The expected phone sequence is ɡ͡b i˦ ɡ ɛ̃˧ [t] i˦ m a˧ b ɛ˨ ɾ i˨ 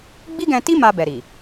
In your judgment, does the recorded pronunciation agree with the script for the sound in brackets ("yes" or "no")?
yes